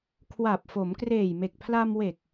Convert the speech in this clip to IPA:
kʰ w a˨˩ p̚ f o˩˦ m k r eː˨˩ j m e˨˩ k̚ pʰ l a˧ m w e˨˩ k̚

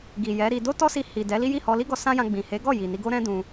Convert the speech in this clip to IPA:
ɡ i˨ j ɛ˨˦ ɾ i˧ d o˦ t ɔ˦ s i˧ h i˨ d ɛ˨˦ l i˦ j i˦˨ h ɔ˧ l i˦ ɡ ɔ˧ s ã˦ j ã˧ ɡ͡b ĩ˨ h e˨˦ ɡ ɔ˦˨ j i˨ n i˧ ɡ o˦ ɾ ɛ̃˦ d ũ˧

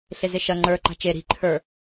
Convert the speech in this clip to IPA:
ɬ e z e ʃ ɐ ŋ͡ǃ ə˞ ǃ a̤ t͡ʃ e ɾ i̤ ǃʰ ə˞

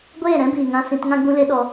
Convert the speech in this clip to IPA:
ɡʷ eː˦˨ ɾ ɛ̃˦ b iː˨ ŋ ã˧ s ĩ˧ t ŋ ã˧ ɡ͡b ũ˧ l e˧ ɗ ɔ˧

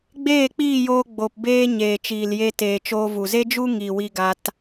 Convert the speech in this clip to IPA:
ɡ͡b eː˦˨ k͡p iː˦˨ j oː˧ ɡ͡b o˨ p b eː˧ ɲ eː˨ t͡ʃ iː˨ l j e˧ t eː˨ t͡ʃ oː˧ v u˨ z e˦ d͡ʒ u˦ ŋ i˨ w i˧ ɡ a˧ t

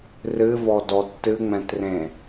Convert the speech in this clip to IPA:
r ɨ v ɔ d ɔ tː ɨ ŋ͡m ɛ̃ t r ẽ

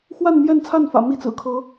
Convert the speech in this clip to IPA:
x w a˥˧ n m j ɛ˥˧ n t͡sʰ a˥˩ n f ä̰˨˩ m i˥˩ t͡s ɹ̩˨˩ kʰ ɤ˧˥

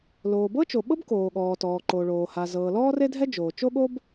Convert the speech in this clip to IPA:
l oː˩ b ɤ˥ t͡ʃ o˩ ɓ ɤ˥ b k oː˩ ɠ ɔː˩ t ɔː˩ ǃ o˩ ɭ oː˩ h a˩ z ɤː˩ l ɔː˥ r e˥ dʱ ɛ˥ d͡ʒ oː˩ t͡ʃ o˥ ɠ o˥ b

